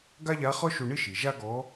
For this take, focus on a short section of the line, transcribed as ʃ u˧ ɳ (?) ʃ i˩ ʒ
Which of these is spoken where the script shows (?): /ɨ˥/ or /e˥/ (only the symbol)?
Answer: ɨ˥